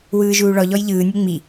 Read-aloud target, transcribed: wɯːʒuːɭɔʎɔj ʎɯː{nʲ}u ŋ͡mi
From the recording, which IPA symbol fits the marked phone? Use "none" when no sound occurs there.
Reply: nʲ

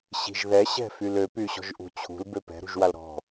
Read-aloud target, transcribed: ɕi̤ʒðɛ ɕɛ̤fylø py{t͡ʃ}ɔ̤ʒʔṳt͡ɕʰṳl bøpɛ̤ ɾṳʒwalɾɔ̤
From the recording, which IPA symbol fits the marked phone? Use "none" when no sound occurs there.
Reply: ɕ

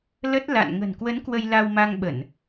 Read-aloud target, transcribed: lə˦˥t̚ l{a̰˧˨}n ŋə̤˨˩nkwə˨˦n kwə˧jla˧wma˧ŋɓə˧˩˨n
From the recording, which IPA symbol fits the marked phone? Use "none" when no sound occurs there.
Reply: a̰˧˨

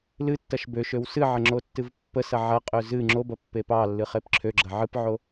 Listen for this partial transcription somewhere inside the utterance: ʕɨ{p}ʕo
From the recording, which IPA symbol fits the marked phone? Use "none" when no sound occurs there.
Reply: p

